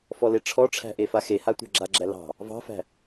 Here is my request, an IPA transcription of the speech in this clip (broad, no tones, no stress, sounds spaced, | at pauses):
f ɔ l e ʈ͡ʂʰ ɔ ʈ͡ʂʰ æ̤ ʔ e f a x e h a tʷ æ̤ ɡ͡ǁ a ɡ͡ǁ æ l ɑ̤ | v ɑ̤ f æ̤